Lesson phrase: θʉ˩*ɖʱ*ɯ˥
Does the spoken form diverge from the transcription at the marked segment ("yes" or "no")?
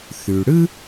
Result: yes